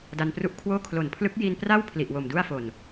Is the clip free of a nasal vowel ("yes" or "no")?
yes